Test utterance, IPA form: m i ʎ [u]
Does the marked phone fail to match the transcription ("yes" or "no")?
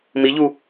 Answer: no